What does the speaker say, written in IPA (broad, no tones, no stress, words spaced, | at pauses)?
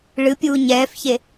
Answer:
ɭɨpʲuː ɲɛːfçe